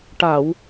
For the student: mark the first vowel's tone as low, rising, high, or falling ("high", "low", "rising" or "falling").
low